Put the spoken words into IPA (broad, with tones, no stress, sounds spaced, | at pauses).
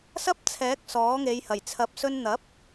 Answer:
s ɐ˥ p̚ t͡sʰ ɛː˨˥ k̚ s ɔː˨˥ ŋ e˨˧ j h ɐ˨˩ j t͡sʰ ɐ˨˥ p̚ s ɵ˧ n n̪ ɐ˨˥ p̚